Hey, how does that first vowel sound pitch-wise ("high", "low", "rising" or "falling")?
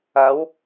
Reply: rising